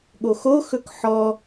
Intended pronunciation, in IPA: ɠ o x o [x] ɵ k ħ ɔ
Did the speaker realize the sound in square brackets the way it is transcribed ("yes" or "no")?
yes